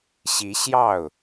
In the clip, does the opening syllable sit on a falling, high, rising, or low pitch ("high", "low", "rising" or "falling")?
rising